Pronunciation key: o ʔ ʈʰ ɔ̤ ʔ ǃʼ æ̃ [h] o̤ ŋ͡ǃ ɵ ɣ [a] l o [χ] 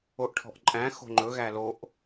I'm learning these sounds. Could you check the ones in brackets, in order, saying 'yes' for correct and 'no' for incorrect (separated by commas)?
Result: no, no, no